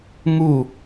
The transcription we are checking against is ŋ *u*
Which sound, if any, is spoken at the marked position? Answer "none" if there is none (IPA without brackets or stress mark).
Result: u